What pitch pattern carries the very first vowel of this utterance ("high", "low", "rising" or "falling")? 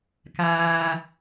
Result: low